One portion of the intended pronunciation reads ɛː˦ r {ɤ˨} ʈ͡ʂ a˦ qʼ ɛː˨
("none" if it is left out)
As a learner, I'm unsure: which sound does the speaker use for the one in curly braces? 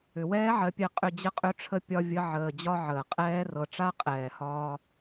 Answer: ɤ˨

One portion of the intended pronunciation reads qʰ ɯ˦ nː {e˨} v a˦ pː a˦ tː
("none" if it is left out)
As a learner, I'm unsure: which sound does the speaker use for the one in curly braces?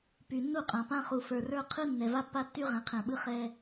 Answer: ɛ˨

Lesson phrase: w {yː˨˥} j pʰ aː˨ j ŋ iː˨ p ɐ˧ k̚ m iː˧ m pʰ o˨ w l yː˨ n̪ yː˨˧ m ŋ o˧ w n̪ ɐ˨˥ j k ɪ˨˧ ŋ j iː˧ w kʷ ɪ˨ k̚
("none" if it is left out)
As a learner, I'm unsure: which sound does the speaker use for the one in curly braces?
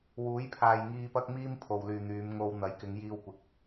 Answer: uː˨˥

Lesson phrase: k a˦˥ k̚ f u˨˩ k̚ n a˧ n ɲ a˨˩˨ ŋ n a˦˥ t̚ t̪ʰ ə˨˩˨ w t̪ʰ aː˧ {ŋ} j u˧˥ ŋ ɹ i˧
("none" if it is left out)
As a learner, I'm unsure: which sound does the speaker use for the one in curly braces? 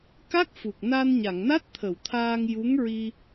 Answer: ŋ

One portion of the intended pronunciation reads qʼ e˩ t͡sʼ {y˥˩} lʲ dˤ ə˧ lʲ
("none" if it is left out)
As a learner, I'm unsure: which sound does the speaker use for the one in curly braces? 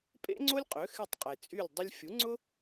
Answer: y˥˩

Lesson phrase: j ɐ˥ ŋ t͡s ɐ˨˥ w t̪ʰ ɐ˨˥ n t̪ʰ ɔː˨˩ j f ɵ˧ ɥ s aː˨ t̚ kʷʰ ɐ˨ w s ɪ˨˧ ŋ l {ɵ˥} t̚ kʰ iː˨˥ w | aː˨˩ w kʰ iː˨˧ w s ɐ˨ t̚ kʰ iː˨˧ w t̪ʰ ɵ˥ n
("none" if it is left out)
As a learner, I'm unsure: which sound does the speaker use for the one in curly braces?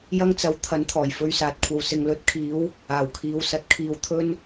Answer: ɵ˨˥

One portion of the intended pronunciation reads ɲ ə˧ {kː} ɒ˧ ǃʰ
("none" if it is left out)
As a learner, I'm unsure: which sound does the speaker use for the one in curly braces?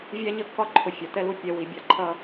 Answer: kː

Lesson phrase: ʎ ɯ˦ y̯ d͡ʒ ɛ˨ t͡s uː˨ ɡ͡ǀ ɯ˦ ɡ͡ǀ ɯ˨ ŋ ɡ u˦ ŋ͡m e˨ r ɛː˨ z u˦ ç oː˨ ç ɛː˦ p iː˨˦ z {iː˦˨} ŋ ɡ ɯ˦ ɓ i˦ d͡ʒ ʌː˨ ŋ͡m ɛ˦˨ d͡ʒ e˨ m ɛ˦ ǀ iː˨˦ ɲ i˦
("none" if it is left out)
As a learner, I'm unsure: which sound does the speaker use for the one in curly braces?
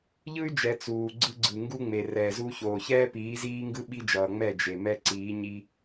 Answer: iː˦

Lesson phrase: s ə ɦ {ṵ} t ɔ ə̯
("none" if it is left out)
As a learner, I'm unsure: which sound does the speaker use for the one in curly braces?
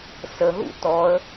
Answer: ṵ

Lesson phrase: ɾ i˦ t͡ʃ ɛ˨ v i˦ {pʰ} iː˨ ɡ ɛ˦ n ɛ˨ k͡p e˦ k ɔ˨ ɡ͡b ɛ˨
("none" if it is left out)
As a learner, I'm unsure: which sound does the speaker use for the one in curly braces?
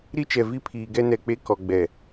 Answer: pʰ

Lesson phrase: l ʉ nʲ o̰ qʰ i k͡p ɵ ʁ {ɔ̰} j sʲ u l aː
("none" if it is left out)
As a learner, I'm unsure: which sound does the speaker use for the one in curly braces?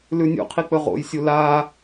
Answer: o̰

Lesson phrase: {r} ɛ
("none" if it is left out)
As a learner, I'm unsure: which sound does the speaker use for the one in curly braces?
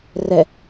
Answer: r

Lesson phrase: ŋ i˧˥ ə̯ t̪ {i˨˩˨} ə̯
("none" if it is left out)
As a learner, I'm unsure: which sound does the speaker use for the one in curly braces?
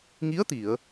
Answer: i˨˩˨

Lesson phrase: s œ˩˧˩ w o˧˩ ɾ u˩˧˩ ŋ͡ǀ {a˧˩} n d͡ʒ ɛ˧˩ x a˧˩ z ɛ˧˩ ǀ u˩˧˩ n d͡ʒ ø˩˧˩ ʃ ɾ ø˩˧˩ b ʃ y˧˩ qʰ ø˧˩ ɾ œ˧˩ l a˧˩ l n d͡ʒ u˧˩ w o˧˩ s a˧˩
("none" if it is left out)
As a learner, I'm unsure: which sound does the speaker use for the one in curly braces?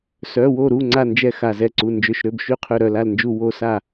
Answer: a˧˩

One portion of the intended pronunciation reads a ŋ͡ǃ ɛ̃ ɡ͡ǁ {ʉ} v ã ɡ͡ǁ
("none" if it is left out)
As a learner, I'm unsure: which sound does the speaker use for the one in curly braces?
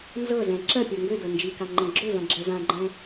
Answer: ø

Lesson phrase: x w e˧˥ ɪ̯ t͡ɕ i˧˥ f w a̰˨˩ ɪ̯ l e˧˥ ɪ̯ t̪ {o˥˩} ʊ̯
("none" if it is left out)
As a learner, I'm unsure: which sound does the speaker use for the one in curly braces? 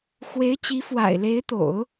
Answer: o̰˨˩˦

